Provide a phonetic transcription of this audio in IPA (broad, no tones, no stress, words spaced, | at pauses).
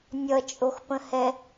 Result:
nʲʌt͡ʃʼoxpə̃hɛ